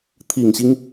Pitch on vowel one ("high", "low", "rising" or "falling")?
low